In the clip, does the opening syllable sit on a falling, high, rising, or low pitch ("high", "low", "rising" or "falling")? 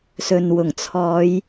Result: low